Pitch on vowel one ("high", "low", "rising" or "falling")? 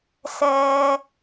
low